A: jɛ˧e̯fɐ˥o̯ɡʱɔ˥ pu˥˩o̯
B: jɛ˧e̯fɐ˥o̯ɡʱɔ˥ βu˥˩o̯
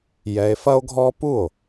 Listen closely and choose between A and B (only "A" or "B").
A